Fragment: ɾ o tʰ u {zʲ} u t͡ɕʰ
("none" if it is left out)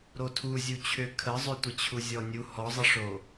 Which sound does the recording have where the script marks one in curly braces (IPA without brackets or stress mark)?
zʲ